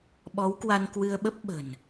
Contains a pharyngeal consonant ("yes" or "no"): no